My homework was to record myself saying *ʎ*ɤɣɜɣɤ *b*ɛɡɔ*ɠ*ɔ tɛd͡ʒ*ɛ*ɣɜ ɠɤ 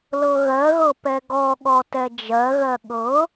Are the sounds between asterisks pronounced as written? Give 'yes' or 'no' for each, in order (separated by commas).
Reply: no, no, yes, no